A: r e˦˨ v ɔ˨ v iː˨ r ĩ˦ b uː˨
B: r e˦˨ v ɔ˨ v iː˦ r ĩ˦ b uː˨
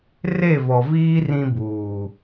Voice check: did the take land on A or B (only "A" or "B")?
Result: B